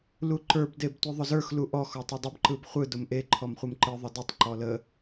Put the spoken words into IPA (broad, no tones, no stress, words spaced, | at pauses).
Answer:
luǃə˞b debtʷɯðˤʊzə˞x luʔɔ xɔtˤɛdˤʊb ǃɯbχʷɯ dʊmʔe ǃʰɔmχʷɯmǃɯ ðˤədətˤ ǃɔlə